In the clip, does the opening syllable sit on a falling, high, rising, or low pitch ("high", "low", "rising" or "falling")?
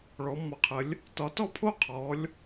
rising